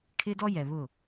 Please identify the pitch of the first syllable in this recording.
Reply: high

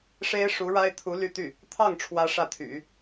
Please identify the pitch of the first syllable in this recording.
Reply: high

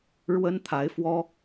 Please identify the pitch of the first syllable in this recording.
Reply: high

